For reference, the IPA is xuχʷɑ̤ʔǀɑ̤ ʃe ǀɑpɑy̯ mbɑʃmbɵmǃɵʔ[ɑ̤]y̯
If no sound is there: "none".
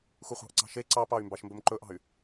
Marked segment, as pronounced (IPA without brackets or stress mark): ɑ̤